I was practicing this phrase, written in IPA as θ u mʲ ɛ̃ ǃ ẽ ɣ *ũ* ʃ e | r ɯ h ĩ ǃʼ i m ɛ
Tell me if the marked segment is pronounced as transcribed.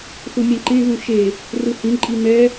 yes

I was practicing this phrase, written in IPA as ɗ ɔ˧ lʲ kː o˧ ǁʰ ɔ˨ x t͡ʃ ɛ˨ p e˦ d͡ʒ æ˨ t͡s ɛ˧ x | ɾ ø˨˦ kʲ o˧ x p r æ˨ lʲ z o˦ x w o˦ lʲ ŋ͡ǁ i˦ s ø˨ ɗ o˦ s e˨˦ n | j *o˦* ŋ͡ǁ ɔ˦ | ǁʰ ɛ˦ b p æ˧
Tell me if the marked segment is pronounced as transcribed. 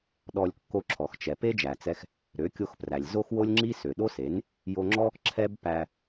no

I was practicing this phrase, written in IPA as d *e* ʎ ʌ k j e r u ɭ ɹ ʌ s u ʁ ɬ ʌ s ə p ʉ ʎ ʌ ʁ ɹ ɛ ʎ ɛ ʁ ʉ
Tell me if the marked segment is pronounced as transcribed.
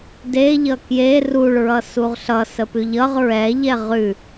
yes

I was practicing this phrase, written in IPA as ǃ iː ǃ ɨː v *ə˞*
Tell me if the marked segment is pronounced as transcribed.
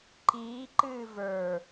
yes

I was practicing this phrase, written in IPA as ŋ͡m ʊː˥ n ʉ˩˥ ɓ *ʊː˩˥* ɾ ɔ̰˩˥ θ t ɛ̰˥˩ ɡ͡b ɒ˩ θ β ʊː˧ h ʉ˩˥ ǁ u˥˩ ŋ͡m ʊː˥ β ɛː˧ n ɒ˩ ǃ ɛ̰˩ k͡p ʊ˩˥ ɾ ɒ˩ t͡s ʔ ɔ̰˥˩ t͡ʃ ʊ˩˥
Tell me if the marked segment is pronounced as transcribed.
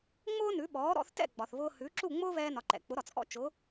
no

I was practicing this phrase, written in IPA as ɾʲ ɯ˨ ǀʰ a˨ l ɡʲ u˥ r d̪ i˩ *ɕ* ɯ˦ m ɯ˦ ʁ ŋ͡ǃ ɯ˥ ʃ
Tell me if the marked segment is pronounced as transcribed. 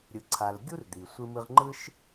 no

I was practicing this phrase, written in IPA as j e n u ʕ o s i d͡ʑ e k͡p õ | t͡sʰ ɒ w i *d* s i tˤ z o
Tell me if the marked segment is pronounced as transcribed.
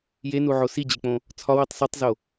no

